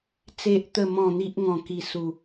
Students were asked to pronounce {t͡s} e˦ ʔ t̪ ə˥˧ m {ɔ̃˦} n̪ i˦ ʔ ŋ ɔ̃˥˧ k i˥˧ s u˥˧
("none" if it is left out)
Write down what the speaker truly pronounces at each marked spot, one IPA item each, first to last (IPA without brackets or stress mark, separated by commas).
t͡s, ɔ̃˥˧